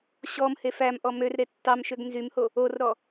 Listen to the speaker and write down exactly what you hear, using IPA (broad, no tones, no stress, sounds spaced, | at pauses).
ɕ ɔ m h e f æ m ʔ ɔ m ø r ɾ e tː ɑ m ʃ ø ɡ n z y m h o | o r ɾ ɔ